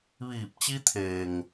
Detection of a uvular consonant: absent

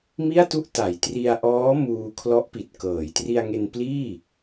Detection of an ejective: absent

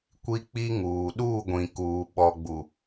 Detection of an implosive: present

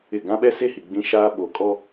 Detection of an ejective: present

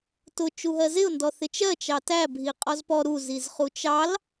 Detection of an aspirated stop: absent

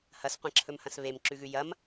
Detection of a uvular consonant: present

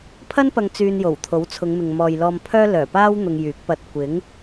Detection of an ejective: absent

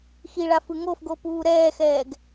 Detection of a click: absent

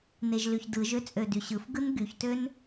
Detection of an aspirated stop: absent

